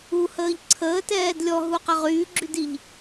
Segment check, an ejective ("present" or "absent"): absent